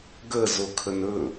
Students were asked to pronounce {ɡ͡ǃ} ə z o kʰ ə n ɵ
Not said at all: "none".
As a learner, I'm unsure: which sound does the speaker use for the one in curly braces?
ɡ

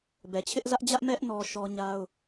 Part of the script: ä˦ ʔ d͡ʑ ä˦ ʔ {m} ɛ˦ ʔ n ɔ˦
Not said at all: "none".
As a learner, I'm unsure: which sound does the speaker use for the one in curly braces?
m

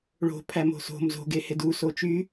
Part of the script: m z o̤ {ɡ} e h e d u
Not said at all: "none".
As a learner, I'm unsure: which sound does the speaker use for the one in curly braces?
ɡ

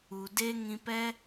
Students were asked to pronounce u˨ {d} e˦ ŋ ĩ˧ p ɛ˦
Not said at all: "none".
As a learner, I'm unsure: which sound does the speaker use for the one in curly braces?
d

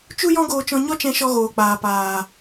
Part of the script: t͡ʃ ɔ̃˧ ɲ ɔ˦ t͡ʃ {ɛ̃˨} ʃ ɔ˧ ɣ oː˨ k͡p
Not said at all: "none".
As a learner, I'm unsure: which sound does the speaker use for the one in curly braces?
ɛ̃˧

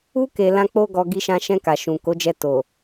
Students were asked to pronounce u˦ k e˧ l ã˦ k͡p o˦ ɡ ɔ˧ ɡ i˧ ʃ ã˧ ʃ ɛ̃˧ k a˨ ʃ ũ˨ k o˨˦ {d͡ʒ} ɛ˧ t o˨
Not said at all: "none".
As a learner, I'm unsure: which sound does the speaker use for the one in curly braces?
d͡ʒ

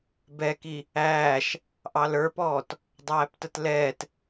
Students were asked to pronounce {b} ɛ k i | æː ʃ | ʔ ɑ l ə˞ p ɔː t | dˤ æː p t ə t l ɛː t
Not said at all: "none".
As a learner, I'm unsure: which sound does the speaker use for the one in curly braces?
b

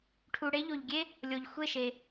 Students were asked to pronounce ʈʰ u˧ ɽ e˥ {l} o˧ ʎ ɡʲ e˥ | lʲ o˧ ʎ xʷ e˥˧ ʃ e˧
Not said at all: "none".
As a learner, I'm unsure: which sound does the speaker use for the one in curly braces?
ʎ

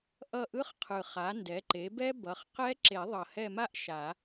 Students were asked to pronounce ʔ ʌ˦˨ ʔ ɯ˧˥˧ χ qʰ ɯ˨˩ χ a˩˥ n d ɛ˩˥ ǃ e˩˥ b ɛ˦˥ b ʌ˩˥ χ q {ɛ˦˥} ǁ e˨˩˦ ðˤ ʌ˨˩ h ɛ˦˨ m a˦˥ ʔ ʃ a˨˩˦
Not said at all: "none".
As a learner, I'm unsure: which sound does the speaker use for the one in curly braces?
ɛ˦˥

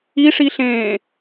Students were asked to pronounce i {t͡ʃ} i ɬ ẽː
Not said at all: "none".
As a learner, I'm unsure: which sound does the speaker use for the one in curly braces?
ʂ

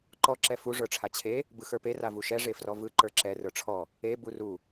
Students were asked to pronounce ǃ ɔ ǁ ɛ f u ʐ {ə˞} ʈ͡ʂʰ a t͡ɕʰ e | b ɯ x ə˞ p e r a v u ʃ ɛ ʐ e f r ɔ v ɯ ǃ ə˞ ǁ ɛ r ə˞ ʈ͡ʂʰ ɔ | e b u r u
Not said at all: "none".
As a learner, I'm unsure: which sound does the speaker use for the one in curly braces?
ə˞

